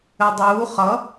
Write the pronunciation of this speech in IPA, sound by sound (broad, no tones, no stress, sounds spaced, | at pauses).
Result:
ɘ dˤ uː χ ʌ